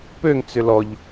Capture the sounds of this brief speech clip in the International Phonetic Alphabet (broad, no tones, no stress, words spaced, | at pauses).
pøŋ t͡sʏlɔʎ